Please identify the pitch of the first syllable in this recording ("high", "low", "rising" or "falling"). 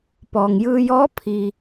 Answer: low